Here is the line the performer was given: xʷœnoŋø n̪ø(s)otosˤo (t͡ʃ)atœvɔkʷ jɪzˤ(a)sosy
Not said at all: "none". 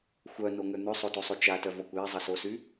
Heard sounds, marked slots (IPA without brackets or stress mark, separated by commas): sˤ, t͡ʃ, ɐ